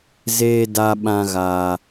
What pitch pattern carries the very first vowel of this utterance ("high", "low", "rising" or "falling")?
low